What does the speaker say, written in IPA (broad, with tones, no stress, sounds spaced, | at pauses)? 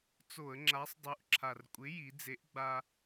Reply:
t͡s o˧˩˧ ə̯ ŋ͡ǁ a˨˥ sˤ dˤ u˨˥ ʔ ǁʰ a˨˩ r kʷʼ ɪ˨˥ j i˩˧ d͡z e˨˥ ʔ ɡ͡b a˦